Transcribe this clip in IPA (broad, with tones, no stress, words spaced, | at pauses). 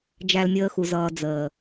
d͡ʒæ˦lmʲəː˦xu˨zʌː˨ d͡zəː˨